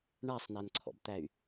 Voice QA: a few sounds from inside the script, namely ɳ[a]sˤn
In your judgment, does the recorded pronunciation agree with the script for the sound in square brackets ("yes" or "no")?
yes